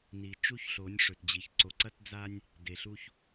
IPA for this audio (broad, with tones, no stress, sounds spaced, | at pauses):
n i˨ t͡ʃ u˦ ç ɬ o˨˦ nʲ ʂ ɵ˨ t d͡ʑ i˨ ç ǀ o˨ ǀ ɐ˦ t d͡z a˦ nʲ | d e˨ ɬ u˦ ç